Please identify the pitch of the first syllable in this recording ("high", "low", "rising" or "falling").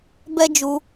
high